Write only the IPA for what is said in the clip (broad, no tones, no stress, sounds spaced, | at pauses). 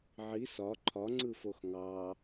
ʕ i s ɒ ǃʰ ɒ ŋ͡ǀ ɯ f o x ŋ ɑ